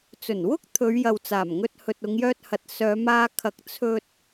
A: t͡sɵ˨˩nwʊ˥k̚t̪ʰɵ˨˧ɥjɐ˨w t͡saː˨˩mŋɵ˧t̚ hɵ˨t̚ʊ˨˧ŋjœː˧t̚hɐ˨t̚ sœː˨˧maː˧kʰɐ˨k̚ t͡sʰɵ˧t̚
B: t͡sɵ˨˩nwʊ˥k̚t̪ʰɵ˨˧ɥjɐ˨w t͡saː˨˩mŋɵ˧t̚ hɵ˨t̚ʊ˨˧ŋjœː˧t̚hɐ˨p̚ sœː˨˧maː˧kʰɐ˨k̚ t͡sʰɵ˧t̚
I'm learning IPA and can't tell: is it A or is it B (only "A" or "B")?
A